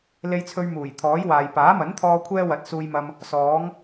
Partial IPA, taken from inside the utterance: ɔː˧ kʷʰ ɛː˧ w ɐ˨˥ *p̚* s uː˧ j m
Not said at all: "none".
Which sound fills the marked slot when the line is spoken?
t̚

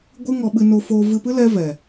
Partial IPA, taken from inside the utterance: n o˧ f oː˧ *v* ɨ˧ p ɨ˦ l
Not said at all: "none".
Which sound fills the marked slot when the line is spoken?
v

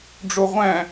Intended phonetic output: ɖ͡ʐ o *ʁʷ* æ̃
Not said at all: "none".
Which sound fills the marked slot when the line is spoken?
ʁʷ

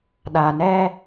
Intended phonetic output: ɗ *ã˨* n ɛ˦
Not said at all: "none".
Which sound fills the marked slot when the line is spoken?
a˨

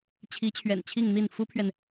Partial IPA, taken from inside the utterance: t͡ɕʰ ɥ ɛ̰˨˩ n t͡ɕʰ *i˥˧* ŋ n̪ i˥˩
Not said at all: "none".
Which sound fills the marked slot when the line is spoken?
i˥˧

